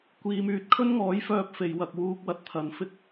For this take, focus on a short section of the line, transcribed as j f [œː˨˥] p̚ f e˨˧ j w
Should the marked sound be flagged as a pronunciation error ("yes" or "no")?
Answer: yes